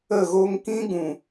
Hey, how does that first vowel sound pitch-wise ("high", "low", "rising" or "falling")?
falling